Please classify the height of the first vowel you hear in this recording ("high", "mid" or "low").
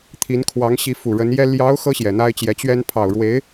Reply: high